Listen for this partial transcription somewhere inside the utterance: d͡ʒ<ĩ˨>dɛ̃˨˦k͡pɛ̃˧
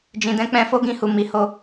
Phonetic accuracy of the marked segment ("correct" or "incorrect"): correct